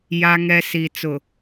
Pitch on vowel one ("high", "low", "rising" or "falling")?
high